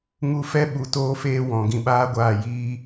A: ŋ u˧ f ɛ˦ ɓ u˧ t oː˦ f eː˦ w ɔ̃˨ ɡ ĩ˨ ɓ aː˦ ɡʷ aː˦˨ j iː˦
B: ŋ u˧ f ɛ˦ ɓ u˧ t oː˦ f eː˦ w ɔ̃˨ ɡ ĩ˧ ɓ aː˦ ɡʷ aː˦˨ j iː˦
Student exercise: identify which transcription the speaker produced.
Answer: B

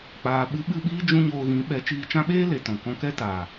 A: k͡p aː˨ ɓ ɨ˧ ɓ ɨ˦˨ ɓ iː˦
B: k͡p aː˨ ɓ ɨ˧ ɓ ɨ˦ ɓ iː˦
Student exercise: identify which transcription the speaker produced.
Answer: A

